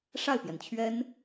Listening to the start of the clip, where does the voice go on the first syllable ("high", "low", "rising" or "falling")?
falling